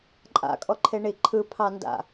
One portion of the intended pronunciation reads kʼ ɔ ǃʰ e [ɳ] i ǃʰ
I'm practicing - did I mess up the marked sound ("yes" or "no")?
no